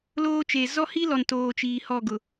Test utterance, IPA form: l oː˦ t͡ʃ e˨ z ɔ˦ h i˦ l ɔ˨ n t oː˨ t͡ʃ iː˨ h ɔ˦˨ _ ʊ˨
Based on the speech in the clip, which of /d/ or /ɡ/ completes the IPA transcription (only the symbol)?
ɡ